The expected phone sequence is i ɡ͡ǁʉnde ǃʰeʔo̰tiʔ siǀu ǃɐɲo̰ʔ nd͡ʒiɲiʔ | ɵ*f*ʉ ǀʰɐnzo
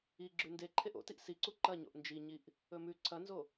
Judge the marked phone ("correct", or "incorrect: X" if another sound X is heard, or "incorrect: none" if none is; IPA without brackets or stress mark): incorrect: m